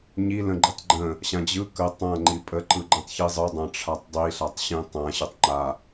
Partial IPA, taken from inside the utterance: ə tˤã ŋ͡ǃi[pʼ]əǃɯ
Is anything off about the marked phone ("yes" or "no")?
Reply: no